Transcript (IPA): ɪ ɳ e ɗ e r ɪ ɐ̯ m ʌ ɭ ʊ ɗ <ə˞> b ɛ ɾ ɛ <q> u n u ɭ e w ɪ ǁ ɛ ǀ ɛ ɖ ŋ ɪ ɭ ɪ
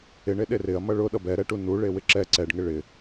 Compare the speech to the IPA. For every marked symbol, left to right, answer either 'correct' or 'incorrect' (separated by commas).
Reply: incorrect, incorrect